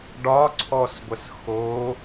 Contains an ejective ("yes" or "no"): no